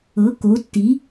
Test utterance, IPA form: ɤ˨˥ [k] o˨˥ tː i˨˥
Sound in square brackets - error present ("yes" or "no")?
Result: no